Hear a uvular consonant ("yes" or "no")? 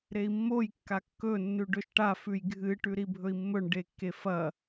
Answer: no